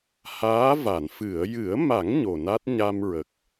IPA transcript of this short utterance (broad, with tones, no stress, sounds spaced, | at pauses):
h aː˧˥ v a˨˩˨ n f ɨ˨˩˨ ə̯ j ɨ˨˩˦ ə̯ m a˨˩˦ ŋ ɲ o˨˩ n a˦˥ t̚ ɲ a˧ m ɹ ə˨˩ k̚